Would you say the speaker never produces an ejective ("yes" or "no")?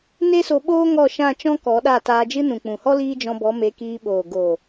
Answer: yes